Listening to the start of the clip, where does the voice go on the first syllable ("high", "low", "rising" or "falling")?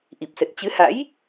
low